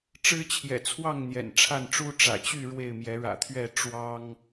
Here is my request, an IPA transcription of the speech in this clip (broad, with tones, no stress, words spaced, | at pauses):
ʈ͡ʂɻ̩˦t͡ɕʰjɛ̰˨˩t͡sʰwɑ˥˨ŋ n̪jɛ̰˨˩nʈ͡ʂʰa˥˨nʈ͡ʂu˦ ʈ͡ʂä̰˨˩t͡ɕy˥˨ ɻwe˥˨ɪ̯mjɛ˨˦ ɻä̰˨˩t̪ʰɥɛ˥˨ ʈ͡ʂwɑ˦ŋ